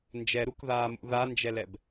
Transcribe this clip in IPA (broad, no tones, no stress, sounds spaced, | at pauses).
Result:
n d͡ʒ ɛ ɾ u k ð aː m ṵ ð a n d͡ʒ ɛ l ɛ b